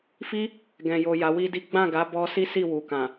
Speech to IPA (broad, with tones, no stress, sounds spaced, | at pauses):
f i˦ | ɡ ɛ̃˨ j o˨ j a˨˦ w i˦ d i˦ ɡ͡b ã˦˨ ɡ a˨˦ b ɔ˧ s i˦ s i˦˨ w u˨ k ã˨